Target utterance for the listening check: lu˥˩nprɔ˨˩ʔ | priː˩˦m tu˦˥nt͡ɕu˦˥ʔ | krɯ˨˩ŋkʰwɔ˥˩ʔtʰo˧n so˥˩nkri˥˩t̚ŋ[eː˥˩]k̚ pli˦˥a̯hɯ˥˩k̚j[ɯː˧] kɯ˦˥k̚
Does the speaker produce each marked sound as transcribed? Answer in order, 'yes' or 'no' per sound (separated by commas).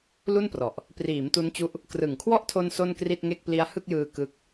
no, yes